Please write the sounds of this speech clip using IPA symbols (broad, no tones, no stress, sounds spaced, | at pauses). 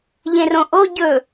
ʎ ẽ r õ ʔ o ɟ ɵ